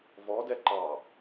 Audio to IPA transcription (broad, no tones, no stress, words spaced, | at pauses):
vɔ dɛǃɑ